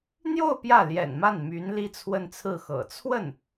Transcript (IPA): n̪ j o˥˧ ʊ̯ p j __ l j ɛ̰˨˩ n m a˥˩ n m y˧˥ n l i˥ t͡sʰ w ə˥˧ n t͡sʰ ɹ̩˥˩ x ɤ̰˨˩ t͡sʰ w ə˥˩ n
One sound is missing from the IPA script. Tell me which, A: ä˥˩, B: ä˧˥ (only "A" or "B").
A